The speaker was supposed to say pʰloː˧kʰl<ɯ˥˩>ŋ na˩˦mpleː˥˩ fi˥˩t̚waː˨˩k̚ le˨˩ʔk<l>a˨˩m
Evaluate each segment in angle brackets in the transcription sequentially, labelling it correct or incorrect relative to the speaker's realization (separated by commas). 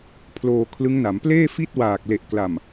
incorrect, correct